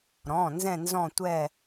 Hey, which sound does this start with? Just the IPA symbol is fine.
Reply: ɾ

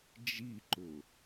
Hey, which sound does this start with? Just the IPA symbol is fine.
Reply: d͡ʒ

